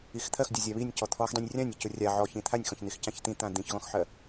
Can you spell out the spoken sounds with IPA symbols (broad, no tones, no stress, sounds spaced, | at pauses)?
i x t̪ʰ ɜ x dʲ ɔ zʲ a β i nʲ c ɔ t̪ʰ ɔ x dˤ ĩ nʲ rʲ ã nʲ i c ʊ rʲ a ʕ ɔ ç ĩ t̪ʰ a nʲ x ɔ̃ ç n̪ i x c ã ç t̪ ĩ t̪ ã d̪ ĩ ç ɣ ɔ̃ x ħ ɜ